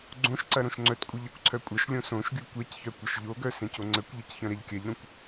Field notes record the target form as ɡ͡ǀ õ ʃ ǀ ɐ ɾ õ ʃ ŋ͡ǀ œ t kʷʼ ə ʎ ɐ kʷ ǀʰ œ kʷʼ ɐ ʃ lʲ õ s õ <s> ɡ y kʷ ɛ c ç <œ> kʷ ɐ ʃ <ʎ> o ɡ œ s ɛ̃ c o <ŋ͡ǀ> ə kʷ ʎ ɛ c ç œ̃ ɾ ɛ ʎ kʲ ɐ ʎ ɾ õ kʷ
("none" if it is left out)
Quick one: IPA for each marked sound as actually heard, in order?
ʃ, œ, ʎ, ŋ͡ǀ

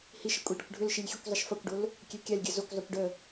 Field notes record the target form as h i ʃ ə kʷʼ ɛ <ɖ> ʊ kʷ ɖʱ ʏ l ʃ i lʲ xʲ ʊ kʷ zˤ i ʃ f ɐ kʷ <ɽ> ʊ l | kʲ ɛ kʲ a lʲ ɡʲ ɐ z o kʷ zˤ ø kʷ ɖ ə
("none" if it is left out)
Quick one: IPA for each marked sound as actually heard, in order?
ɖ, ɖ

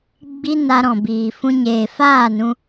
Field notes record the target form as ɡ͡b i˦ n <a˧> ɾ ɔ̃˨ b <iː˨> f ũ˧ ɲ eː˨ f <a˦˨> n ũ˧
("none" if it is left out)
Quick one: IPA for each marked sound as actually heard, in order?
a˧, iː˨, aː˦˨

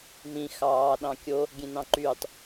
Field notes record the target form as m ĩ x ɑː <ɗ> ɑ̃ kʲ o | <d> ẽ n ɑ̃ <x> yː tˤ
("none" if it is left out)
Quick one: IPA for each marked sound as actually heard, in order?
ɗ, ɡʲ, ǃ

